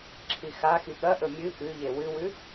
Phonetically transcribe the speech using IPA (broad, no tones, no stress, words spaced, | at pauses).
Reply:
ǁʰixaxi ɠɐʔɵ mʲɨ ʔʉʎe wɨwʉ